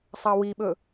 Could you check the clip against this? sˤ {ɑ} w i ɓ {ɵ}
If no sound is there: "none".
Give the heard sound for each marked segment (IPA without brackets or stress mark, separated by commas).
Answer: ɑ, ɵ